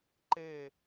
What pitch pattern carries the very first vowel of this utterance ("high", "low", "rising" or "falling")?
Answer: falling